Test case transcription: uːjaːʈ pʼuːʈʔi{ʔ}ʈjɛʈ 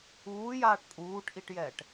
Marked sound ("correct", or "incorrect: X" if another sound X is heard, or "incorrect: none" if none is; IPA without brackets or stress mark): incorrect: none